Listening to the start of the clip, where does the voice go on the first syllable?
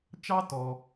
high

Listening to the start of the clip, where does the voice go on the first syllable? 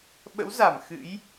rising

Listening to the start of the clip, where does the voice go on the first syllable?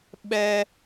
high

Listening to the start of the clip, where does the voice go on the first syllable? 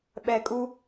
low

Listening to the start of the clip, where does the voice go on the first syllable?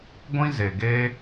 high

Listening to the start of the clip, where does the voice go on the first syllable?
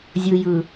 low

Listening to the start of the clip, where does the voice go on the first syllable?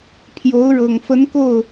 rising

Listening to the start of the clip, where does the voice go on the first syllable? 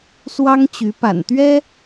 high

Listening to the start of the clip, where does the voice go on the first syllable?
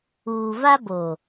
low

